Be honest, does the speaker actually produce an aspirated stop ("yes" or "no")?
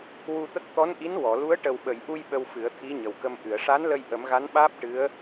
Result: yes